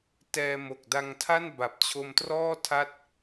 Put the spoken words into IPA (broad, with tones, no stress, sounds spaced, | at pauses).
t ɛː˧ m o˨˩ k̚ d a˧ ŋ tʰ a˥˩ n b a˨˩ p̚ t͡ɕʰ o˧ m t r ɔː˥˩ tʰ a˦˥ t̚